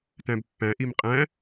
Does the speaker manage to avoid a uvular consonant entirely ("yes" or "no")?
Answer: no